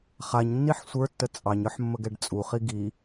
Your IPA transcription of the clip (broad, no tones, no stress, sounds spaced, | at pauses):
χ a ɲ nː i ħ sʷ ə˞ tː ə t͡sʼ ɑ ɲ ə˞ ħ mː ə ɡ ɛ ɖ t͡sʼ u χ i ɡ i